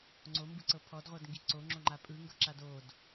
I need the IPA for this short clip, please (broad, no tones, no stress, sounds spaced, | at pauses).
ŋ͡ǀ o m b ɯ ǀ ɤ pʰ ɔ d ʁʷ ɤ d ŋ ɡ i ǀ o ŋ͡ǁ o ŋ͡ǃ a pʼ ɯ ŋ ɡ ɤ ǁ a d o d